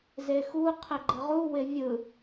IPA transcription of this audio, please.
z e x u qʰ ɪ ɡ͡ǃ ɘ ʁ u w ɪ vʲ ɯ

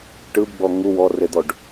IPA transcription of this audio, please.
ʈ ɯ b ɡ͡b ɔ ŋ u w ɔ r e d̪ ɔ ɖ

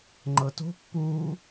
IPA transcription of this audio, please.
ŋ͡ǃ ɤ t o̤ pː uː

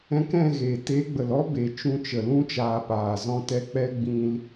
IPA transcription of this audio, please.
ɛ̃˧ k ɛ̃˦˨ ɣ e˨ t e˨˦ ɡ͡b ə˨ l ɔ˦ b e˨ t͡ʃ ũ˧ t͡ʃ ə˨ l ũ˧ t͡ʃ aː˨ p aː˨ z ɔ̃˧ t ɛ˧ k͡p ɛ˦ ɡ͡b ĩ˧ l

